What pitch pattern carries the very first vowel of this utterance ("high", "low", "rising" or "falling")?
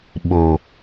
low